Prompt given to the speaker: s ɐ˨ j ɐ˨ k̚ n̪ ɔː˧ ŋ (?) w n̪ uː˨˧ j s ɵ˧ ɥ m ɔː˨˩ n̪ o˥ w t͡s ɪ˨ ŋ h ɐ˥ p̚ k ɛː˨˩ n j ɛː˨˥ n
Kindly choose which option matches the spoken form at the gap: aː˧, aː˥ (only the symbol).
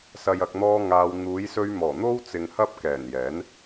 aː˧